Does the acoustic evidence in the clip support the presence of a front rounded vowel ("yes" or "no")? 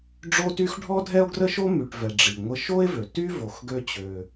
yes